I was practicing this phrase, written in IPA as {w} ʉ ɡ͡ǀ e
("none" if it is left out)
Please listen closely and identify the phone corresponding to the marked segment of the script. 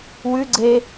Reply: w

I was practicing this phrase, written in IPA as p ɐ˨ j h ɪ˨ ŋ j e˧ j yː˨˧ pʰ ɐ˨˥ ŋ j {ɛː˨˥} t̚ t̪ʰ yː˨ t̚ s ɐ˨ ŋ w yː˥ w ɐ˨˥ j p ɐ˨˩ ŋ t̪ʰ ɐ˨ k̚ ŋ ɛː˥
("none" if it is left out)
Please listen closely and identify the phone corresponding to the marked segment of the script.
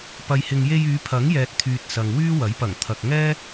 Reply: ɛː˨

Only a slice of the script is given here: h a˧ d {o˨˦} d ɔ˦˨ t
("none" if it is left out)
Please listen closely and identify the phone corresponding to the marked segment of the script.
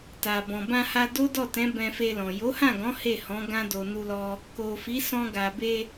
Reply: o˦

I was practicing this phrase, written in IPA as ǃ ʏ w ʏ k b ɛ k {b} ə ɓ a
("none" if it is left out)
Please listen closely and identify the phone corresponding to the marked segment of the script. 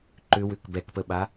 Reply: p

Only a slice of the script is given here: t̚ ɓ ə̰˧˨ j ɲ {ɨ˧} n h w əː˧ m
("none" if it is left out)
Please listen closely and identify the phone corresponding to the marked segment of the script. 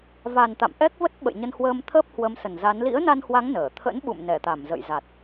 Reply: ə˧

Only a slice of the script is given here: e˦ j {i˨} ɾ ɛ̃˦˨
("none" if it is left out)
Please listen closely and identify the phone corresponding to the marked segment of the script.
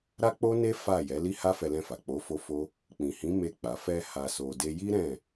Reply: i˦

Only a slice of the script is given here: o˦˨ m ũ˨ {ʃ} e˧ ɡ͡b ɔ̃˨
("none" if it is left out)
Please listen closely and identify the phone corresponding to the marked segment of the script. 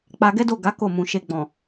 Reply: ʃ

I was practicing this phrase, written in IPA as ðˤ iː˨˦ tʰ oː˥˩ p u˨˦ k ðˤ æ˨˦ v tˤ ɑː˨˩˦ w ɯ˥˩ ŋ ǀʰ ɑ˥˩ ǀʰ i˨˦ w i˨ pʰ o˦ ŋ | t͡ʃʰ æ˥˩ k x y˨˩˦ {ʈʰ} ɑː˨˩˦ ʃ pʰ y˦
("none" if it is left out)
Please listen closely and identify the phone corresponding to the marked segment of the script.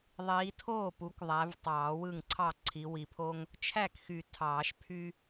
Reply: tʰ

